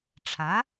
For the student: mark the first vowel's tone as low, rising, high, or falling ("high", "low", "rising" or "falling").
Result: rising